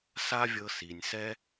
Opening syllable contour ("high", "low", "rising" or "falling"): high